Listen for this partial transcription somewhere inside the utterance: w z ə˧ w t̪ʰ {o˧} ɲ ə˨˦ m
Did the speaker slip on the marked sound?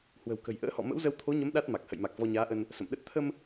yes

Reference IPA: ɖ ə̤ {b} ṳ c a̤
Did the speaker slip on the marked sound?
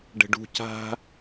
yes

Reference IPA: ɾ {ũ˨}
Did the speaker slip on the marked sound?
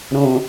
no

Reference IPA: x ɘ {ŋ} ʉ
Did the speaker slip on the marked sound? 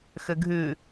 yes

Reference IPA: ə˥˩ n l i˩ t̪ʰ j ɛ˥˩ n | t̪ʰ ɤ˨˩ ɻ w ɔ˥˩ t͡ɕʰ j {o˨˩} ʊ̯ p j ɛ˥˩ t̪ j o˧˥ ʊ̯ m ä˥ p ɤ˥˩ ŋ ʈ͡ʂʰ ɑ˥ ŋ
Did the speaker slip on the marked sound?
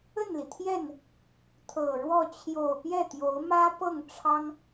no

